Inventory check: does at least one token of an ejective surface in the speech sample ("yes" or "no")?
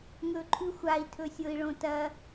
no